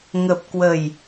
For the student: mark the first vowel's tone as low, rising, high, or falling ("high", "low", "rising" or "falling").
low